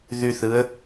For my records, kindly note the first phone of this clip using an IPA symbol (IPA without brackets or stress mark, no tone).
ð